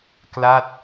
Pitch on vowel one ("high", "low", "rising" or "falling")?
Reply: falling